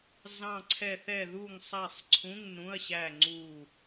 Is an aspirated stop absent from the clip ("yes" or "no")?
no